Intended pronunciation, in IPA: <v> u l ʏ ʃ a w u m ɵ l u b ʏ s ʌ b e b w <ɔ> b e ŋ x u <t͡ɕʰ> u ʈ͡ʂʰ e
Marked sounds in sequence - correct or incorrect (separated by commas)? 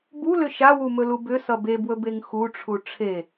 incorrect, incorrect, incorrect